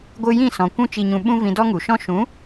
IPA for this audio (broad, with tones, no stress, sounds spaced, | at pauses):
ɡʷ ɨ˧ j ĩ˦˨ s ɔ̃˨ kʷ ũ˧ t͡ʃ i˨ ɲ ũ˨ ɓ ũ˦ v ĩ˧ d ɔ˦ ŋ u˨ ʃ ɔ̃˧ ʃ ũ˨˦